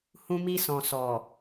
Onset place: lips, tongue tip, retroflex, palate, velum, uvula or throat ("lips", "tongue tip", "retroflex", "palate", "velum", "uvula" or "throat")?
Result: throat